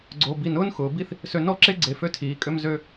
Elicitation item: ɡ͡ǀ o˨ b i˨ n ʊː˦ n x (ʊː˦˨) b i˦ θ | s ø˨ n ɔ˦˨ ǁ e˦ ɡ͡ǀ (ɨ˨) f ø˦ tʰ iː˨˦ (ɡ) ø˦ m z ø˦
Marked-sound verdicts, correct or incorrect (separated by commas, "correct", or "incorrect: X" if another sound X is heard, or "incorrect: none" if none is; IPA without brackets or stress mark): incorrect: ʊː˨, incorrect: e˨, incorrect: kʼ